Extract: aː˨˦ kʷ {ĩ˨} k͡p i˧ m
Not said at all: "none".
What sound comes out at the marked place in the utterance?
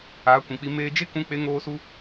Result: ĩ˨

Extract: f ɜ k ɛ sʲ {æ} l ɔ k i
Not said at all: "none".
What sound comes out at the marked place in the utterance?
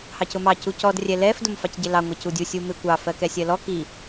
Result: ɜ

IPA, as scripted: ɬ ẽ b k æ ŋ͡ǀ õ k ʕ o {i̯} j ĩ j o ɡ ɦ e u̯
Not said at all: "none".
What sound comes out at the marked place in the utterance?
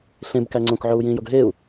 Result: u̯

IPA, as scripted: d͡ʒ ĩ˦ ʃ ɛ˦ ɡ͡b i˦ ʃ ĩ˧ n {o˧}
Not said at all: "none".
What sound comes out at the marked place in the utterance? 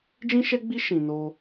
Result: o˧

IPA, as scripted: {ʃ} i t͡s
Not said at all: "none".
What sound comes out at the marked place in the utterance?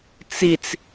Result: t͡s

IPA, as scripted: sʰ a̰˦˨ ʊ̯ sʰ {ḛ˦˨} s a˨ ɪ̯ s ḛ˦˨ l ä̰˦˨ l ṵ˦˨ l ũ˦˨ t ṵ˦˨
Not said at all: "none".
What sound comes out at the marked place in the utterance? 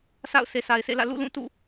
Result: e˨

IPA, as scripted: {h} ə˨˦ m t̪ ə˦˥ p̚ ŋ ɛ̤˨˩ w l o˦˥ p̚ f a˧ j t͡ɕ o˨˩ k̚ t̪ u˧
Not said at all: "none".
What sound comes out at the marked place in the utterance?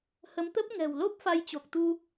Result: h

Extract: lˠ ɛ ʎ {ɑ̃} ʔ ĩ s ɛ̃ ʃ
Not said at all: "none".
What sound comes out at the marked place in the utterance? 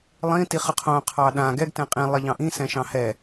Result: ɑ̃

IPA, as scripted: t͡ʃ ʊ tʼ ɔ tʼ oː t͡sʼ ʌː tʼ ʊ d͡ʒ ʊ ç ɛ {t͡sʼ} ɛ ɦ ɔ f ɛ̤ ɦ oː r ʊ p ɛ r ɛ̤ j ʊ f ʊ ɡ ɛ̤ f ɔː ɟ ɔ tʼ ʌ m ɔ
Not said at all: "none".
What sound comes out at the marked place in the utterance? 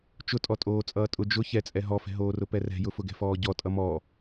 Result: t͡sʼ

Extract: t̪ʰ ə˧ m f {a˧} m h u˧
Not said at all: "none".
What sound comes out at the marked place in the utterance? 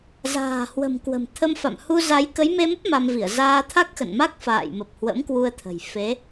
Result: a̰˧˨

